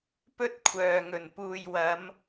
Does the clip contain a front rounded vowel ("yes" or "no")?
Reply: yes